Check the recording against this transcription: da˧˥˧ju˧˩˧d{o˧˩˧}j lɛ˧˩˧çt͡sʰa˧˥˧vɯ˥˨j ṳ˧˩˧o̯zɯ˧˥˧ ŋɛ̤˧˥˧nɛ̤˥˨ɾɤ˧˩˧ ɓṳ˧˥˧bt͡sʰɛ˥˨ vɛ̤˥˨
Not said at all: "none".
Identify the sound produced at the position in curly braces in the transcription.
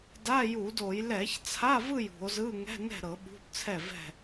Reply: o˧˩˧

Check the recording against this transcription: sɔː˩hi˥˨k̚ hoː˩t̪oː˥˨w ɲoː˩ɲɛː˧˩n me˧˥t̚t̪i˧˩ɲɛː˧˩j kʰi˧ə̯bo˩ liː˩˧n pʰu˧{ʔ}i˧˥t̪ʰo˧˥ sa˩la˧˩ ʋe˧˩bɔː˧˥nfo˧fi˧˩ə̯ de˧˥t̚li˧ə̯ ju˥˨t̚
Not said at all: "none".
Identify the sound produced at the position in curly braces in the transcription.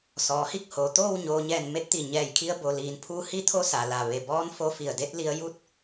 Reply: h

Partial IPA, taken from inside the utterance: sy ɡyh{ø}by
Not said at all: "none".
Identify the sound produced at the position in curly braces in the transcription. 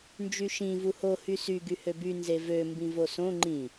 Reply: ø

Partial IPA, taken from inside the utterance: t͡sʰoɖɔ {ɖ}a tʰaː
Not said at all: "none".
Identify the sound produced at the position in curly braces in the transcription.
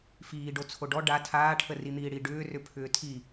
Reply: ɖ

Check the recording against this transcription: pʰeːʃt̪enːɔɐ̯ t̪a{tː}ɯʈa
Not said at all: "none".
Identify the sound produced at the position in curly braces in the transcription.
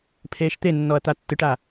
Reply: tː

